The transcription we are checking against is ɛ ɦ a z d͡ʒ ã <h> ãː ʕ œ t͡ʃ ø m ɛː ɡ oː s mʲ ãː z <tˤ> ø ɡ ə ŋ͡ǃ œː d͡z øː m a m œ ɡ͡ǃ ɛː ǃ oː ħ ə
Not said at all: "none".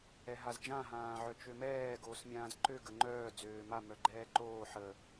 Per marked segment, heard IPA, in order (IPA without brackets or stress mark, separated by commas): ɦ, ǃ